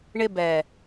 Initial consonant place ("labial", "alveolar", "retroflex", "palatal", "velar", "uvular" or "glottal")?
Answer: retroflex